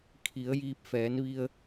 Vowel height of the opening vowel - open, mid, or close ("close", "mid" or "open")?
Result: close